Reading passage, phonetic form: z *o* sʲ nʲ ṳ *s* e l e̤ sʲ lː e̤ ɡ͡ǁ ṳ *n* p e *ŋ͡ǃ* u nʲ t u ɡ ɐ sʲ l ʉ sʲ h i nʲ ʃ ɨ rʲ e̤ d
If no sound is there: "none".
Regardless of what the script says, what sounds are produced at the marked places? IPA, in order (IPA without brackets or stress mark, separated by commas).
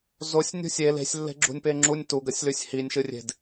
o, sʲ, nʲ, ŋ͡ǁ